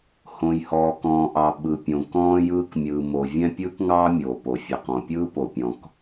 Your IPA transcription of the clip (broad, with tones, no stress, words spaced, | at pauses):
hõ˩jhɔː˩kɔ̃ː˩ʔɑ˩ ɓɯ˩pʲõ˩kɔ̃ː˥jɯː˥k mʲɯː˩mo˩vʲɛ̃˥ pʲɯː˥kŋɑː˥mʲoː˩ po˩fʲɛ˩qɔ̃˩pʲɯː˥ po˩pʲɔ̃˩k